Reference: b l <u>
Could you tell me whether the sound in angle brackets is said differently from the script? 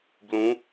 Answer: yes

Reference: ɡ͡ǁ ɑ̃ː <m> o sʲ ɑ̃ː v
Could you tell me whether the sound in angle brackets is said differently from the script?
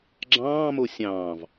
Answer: no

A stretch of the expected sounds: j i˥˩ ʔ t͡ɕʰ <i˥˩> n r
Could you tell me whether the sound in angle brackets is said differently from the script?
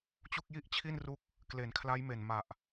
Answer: no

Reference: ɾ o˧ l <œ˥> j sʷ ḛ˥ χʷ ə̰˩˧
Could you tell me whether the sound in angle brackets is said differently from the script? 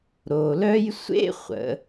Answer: no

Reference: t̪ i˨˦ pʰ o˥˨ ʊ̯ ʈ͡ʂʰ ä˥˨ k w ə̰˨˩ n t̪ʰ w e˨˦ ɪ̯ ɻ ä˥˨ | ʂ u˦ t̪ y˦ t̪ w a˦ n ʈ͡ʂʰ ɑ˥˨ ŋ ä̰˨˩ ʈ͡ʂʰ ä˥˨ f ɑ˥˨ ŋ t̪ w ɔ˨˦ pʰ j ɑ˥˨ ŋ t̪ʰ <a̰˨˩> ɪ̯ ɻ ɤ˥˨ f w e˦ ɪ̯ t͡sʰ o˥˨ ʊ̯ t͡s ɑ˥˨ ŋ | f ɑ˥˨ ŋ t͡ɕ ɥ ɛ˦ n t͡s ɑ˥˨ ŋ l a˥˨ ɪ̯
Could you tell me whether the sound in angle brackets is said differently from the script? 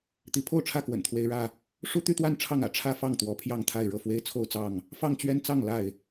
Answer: yes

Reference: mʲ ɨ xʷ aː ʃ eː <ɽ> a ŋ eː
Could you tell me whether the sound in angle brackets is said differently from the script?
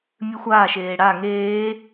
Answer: no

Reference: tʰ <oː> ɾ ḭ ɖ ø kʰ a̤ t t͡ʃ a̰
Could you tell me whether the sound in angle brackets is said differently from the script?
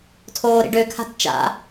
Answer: no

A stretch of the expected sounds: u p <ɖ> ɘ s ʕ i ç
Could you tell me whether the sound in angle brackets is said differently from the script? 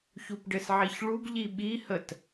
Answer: no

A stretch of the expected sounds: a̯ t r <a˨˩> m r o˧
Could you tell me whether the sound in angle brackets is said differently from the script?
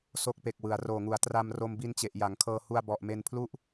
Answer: yes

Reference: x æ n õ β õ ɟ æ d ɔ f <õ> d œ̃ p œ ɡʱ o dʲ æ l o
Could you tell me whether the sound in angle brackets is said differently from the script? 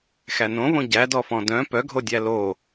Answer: yes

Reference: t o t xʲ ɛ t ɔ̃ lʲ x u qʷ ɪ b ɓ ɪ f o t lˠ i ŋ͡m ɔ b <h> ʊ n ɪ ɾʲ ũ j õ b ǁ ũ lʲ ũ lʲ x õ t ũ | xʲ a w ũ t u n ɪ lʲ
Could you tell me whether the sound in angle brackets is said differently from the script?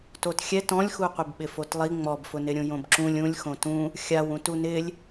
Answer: yes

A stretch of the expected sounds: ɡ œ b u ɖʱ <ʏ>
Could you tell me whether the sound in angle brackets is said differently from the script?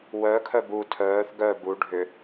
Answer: no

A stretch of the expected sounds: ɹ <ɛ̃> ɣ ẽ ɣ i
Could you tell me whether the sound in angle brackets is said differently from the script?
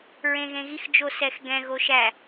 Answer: yes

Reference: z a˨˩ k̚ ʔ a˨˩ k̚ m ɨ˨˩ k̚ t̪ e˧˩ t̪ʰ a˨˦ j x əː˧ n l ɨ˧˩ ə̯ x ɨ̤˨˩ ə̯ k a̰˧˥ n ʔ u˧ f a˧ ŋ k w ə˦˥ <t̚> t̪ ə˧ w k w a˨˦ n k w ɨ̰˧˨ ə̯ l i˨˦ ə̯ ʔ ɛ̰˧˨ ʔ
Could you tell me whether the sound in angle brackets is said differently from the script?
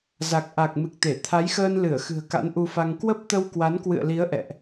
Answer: yes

